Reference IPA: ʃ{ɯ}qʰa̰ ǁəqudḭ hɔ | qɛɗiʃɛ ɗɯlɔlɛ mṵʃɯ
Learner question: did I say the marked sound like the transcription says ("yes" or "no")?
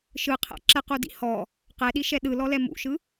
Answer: yes